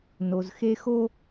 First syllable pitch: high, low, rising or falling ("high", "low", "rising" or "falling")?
low